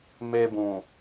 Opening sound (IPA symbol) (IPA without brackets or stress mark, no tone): m